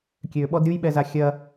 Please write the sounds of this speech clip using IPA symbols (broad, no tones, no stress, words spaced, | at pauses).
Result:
kʲøɓɔd ɾʲujɓɛza xʲɐ